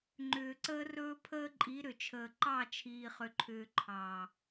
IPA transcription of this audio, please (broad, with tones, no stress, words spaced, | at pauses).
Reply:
ŋ͡ǃʏː˨ǀəː˦rɵː˦ pʰəː˦ǃʼi˨˦ ɾʏ˨t͡ʃʰəː˨ ǃɑ˦˨t͡ʃʰiː˨χʏ˨ǃʰʏː˨ ǃʰɑ˨